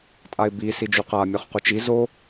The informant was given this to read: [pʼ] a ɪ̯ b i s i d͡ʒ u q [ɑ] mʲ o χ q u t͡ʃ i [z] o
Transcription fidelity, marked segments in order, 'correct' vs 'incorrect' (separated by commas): incorrect, incorrect, correct